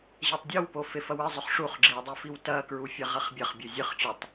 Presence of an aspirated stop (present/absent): absent